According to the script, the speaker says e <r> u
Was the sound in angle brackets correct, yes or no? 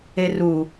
yes